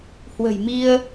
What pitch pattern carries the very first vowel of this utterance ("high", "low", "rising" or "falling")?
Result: low